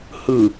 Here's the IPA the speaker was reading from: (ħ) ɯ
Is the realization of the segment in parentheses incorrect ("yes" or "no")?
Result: yes